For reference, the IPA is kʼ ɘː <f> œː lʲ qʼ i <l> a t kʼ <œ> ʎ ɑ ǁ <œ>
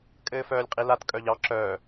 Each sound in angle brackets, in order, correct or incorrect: correct, correct, correct, incorrect

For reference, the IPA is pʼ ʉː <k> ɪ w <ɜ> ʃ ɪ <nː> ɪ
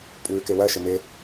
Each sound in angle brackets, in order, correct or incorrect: correct, correct, incorrect

